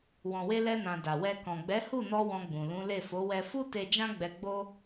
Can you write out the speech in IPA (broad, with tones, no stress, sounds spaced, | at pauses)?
w ɔ̃˨ w e˧ l ɛ˧ n ã˨ d a˨ w ɛ˧ k ɔ̃˨ ɡ͡b ɛ˨˦ h u˦˨ n ɔ˧ w ɔ̃˧ ɡ͡b ũ˨ l ũ˨˦ l e˦˨ f o˨˦ w ɛ˧ f u˦ t e˧ d͡ʒ ã˦ ɡ͡b ɛ˧ ɡ͡b o˦